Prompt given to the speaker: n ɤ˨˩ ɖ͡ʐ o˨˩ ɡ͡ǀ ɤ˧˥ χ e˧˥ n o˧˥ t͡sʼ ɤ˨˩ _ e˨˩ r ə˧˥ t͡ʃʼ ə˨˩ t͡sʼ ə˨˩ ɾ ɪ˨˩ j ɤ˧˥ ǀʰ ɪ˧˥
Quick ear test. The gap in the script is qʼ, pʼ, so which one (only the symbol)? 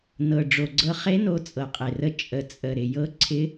qʼ